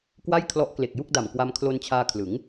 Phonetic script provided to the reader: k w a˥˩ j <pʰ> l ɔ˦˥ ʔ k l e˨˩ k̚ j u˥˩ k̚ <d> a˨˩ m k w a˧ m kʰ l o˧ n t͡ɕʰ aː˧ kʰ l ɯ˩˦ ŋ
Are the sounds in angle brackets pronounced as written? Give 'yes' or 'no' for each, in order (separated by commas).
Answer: no, yes